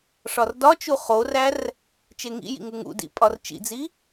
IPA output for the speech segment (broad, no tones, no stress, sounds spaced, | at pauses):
ʂ ɒ r d ɒ t͡ʃ u χ o r æ r | t͡ʃ e ŋ ḭ j ḭ ŋ u ŋ ṵ d ḭ pʼ ɒ r t͡ʃ ḭ d͡z i